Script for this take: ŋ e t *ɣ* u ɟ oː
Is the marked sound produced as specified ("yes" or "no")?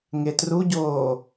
no